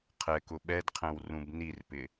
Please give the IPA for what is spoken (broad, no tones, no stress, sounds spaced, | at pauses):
qʰ ɛ k ʊ ɓ ɛ d qʰ ɛ̃ w r ũ b n i r p ɪ